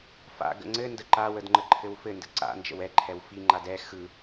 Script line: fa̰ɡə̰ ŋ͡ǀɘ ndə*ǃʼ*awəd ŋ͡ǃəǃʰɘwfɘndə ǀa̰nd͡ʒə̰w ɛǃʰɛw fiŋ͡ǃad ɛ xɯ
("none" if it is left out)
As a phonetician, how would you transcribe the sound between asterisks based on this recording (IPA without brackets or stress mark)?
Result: ǃ